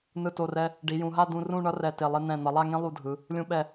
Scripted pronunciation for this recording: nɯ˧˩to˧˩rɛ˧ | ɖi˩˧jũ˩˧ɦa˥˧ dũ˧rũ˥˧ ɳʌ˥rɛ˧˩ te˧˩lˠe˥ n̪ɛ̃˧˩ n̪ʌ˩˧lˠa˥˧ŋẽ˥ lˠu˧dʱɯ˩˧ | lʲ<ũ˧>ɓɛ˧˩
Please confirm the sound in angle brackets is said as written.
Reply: yes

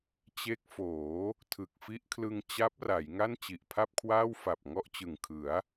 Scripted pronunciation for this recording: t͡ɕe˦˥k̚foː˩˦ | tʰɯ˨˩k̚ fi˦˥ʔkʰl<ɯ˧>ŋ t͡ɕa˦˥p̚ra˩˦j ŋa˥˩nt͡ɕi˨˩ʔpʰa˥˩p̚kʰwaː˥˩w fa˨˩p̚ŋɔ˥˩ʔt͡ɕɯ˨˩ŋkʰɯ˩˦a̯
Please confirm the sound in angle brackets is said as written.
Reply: yes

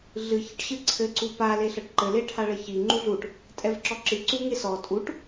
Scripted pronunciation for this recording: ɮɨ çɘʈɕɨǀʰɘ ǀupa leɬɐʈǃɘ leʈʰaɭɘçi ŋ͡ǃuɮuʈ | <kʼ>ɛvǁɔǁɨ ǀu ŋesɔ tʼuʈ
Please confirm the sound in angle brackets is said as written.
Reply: no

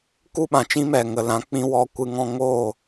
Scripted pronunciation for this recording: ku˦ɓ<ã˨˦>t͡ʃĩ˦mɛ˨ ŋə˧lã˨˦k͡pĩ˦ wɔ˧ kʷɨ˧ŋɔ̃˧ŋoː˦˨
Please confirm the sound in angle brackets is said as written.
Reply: no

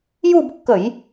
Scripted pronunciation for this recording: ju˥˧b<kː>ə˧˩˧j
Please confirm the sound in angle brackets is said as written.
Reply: yes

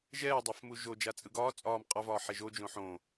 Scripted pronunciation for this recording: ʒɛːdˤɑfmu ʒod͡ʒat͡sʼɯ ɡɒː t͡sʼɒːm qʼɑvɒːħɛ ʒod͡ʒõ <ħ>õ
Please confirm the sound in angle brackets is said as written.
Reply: yes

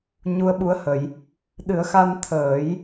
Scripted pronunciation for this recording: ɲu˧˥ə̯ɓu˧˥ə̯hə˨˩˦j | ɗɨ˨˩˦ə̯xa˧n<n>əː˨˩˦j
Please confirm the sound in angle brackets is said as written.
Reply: no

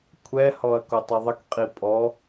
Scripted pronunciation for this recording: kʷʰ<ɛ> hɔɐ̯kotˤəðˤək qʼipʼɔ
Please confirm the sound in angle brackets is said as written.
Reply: yes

